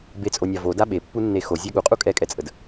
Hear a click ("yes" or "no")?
no